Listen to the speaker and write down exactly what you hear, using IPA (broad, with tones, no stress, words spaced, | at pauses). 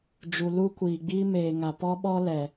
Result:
d͡ʒu˨lu˦kʷiː˨ɡ͡biː˦ meː˨ŋa˨ pɔ˦ɓɔ˦lɛ˨